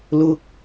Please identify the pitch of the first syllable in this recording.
low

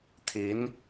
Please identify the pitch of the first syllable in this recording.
rising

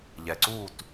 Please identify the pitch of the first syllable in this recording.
low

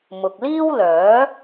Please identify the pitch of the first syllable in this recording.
low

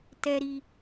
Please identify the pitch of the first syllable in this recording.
high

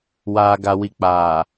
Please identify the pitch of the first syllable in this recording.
low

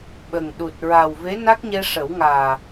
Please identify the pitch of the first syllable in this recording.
low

